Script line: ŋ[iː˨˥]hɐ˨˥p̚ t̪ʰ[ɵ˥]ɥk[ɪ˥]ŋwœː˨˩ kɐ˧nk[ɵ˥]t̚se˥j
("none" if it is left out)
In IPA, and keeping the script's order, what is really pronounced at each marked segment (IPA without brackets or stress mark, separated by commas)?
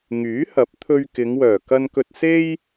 yː˨˥, ɵ˧, ɪ˨˧, ɵ˧